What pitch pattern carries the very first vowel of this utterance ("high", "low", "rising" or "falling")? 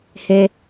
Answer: high